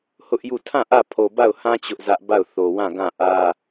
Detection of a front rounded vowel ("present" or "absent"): absent